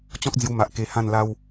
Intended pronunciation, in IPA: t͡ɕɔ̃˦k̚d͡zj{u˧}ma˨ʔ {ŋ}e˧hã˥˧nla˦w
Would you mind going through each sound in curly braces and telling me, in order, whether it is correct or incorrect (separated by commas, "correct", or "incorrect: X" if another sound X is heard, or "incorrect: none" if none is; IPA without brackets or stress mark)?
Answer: correct, incorrect: k